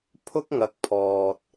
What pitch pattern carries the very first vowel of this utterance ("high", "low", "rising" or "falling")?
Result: high